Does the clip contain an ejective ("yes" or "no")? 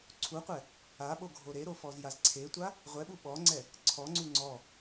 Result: no